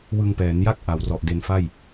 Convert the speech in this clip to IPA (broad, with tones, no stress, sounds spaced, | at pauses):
w ɯ˧ ŋ p ɛː˩˦ n j a˥˩ k̚ ʔ a˩˦ w r ɔ˨˩ ʔ d e˧ n f a˥˩ j